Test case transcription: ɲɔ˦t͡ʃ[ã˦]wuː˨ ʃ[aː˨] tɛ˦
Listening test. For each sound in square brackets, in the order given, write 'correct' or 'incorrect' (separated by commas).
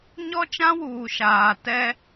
correct, correct